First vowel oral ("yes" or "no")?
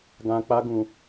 no